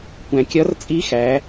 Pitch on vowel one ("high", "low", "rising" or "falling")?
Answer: low